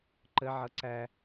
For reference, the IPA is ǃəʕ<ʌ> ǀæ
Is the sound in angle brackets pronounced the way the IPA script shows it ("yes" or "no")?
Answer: yes